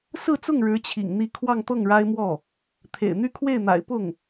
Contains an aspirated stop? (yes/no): yes